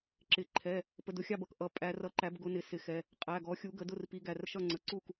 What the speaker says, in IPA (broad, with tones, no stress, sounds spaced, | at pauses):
ǁ ɪ˩˧˩ ǃʰ ɛ˩˧˩ | p ə˩˧˩ d ʊ˨˦ xʲ ɑ˥˩ b ʌ˩˧˩ k ʔ ʌ˨˦ pʼ æ˨˦ r ʌ˨˦ ǃ æ˨˦ b ɡ ʊ˨˦ n ɪ˩˧˩ s ɪ˨˦ x ɛ˩˧˩ | qʼ æ˩˧˩ ɡ ɔ˨˦ xʲ u˨˦ ɡ ə˨˦ d ʊ˥˩ r p i˨˦ ɡ æ˩˧˩ r ʃ ʌ˥˩ ŋ͡ǀ ə˩˧˩ ǀ u˥˩ k